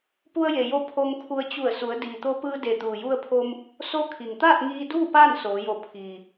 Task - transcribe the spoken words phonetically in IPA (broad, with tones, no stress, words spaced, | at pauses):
pu˧ə̯je˩jo˧ pʰo˧ŋkʰu˧ə̯ t͡ɕu˧˩ə̯su˩˧ə̯ diː˩t̪o˧pɯː˧de˩ t̪uː˩ju˧ə̯pʰo˧m | so˧˥ kʰi˩ŋt̪aː˥˨t̚ŋiː˧duː˥˨ paː˥˨n soː˩˧jo˧˩ pʰiː˩